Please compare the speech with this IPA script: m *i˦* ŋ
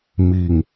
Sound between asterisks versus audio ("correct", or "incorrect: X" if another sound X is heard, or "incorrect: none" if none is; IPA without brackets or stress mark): incorrect: i˥˨